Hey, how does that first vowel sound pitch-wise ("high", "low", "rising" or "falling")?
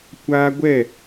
high